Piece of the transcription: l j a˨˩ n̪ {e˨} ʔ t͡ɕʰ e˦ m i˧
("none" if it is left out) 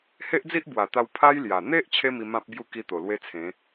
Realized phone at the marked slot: e˦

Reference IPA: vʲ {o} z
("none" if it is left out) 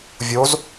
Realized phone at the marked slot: o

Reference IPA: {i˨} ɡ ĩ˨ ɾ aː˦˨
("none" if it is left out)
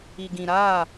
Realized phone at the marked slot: i˨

